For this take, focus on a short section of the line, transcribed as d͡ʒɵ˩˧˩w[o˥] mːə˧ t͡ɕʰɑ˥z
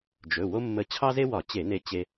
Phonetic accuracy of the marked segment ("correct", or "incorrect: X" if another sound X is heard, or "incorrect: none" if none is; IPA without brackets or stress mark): correct